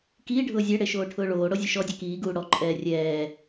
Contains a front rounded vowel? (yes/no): no